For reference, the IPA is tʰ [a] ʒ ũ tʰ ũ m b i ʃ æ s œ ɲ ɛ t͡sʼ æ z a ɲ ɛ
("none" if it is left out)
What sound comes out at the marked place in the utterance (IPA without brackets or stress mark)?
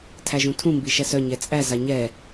æ